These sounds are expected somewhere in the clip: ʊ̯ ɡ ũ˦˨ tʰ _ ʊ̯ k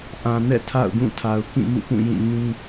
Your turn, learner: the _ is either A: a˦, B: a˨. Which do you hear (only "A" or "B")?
B